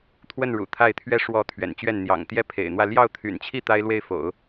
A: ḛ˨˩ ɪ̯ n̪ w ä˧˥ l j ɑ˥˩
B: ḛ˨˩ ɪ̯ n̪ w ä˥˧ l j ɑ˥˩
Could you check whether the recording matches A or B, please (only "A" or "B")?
B